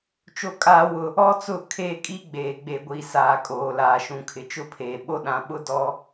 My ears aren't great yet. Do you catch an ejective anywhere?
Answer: yes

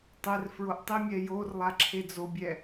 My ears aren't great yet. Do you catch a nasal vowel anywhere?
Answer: no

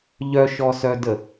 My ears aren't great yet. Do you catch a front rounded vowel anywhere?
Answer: yes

